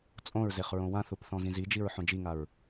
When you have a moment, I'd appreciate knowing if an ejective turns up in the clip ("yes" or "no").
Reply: yes